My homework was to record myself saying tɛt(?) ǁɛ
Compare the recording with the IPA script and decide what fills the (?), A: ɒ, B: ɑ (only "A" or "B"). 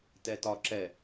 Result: A